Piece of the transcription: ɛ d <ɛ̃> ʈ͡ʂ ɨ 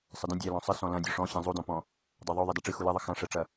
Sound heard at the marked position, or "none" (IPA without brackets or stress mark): ɛ